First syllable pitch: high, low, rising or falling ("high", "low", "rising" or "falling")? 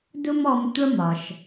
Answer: high